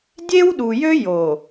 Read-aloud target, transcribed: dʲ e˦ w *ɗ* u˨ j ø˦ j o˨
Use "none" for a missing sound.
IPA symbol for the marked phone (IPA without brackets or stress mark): ɗ